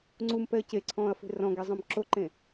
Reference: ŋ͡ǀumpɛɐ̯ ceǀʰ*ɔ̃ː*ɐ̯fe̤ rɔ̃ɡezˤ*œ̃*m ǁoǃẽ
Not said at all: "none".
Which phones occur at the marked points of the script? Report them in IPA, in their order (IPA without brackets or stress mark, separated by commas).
ɔ̃ː, œ̃